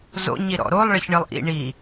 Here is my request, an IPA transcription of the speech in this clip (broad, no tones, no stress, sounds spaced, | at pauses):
z o̰ ɲ i ɾ ɔ̰ ɾ o lˠ ɭ ɘ ç ɳ ɨ lˠ ʔ ḭ ɳ i